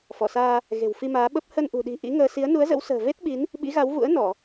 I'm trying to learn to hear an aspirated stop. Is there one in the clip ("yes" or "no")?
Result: no